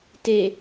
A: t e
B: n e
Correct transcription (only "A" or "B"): A